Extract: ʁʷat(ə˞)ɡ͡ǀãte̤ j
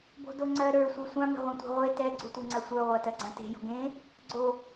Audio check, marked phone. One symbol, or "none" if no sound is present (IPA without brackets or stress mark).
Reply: ɜ